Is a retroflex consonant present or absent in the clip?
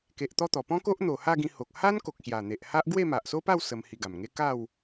absent